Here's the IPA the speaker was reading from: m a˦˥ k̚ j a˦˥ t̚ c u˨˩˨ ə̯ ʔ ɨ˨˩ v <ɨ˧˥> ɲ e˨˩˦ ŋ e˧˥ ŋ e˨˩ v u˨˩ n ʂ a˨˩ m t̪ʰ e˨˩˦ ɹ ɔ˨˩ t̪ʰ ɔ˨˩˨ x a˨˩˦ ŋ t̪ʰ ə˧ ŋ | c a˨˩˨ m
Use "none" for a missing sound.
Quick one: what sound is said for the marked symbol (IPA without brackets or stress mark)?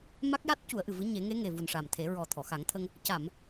ɨ˧˥